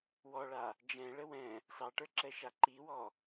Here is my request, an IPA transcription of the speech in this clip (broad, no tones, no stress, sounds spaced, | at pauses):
w ɔ ɭ a | d͡ʒ ɛ̃ ɭ ə w ɛ̃ | s ɑ ʈ ə˞ ǁ ɛ ʃ a ǃ i w ɔ